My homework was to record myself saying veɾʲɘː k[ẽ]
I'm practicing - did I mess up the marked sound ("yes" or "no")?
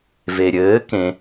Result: no